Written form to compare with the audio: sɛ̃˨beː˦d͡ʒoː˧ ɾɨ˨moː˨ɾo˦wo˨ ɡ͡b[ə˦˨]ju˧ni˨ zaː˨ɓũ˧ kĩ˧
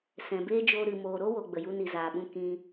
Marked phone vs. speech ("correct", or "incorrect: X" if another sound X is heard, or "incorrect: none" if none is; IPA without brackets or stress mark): incorrect: ə˨